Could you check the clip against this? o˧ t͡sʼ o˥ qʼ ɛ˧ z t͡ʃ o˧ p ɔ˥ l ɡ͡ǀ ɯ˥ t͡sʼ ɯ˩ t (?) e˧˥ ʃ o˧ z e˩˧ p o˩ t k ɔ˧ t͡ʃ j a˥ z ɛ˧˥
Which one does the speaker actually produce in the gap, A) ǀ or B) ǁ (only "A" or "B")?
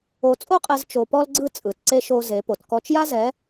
A